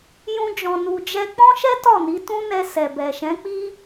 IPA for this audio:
j ũ˦ d͡ʒ ɔ̃˧ n u˧ d͡ʒ ɛ˧ k͡p ɔ̃˦ ʃ ɛ˦ t ɔ˦˨ n i˨˦ t ũ˦ n ɛ˧ s ɛ˨ b ɛ˨ ʃ ɛ̃˨˦ k͡p i˦

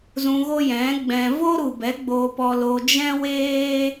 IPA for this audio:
z ũ˧ ɣ o˦ j ɛ̃˨˦ ɡ͡b ɛ̃˧ v o˦ ɾ u˨ b ɛ˨˦ ɡ͡b oː˧ p ɔ˧ l o˧ d͡ʒ ɛ̃˦ w eː˦

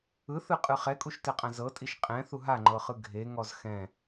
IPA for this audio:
ɯ θ ɯ qʼ ɯ χ ɛ kʼ u ʃ t ɛ qʼ ã z ɤ tʼ i ʃ qʼ ɛ̃ θ u ɦ a ŋ͡ǃ ɤ χ ɯ ɡʱ e ŋ ɔ z x ɛ̃

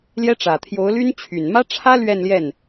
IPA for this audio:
l j ɛ˥ ʈ͡ʂ ä˨˩ t̪ʰ j o˧˥ ʊ̯ l y˥ n t͡ɕʰ y˨˩ n m ä˥ ʈ͡ʂʰ ä˥ l ɥ ɛ˥˧ n l j ɛ˥˩ n

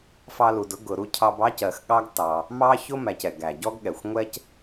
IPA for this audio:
f ɑ˦ l u˨ d ʊ˥ ɡ ʊ˨ ɾ u˥ cʰ ɑ˦ b ɑ˥ c ɜ˨ x ɠ ɑ˥ ɡ t ɑ˨ | m ɑ˥ ç ʊ˥ m æ˨ c ɛ˩ ɡ æ˩ ɟ ɔ˦ ɡ ɠ ɛ˩ xʷ ŋʷ ɛ˥ c

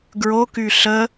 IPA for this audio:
ɡ ɹ o k y ɬ ə

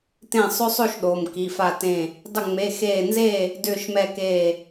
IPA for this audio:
t ẽ˧˩ sˤ ʏ˦ sˤ o˥˨ ʃ ɗ o˩˧˩ m k i˩˧˩ f a˥˨ t ẽ˥˨ | dˤ ʏ˧˩ ŋ͡m e˩˧˩ x eː˧˩ n z eː˥˨ | d ʏː˧˩ ʃ m ɛ˧˩ k eː˧˩

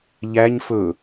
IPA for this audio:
ʎ æ ɲ f ɵ

